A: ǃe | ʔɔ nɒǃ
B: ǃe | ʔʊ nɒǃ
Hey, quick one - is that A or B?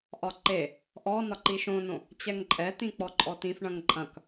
A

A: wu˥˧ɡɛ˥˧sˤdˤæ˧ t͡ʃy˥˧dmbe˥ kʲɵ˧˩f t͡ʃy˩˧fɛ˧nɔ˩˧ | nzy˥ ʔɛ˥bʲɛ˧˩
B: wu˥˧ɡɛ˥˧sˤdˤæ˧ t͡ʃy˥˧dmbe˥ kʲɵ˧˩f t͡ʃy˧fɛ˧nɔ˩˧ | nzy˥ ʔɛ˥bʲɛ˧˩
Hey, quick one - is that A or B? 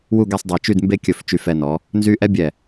B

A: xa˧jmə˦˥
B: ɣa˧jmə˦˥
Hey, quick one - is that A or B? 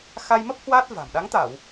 A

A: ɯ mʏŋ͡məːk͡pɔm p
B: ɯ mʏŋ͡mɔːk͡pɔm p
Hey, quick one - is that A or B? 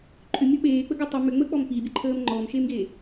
A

